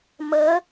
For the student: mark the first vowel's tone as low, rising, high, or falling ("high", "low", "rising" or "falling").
rising